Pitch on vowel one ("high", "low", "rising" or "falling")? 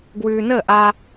low